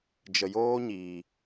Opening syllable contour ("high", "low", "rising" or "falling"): low